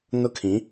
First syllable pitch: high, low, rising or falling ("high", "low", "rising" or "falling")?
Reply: high